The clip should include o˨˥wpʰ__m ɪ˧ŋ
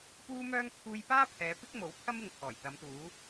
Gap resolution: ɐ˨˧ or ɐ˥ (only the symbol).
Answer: ɐ˥